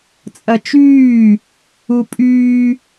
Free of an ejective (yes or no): no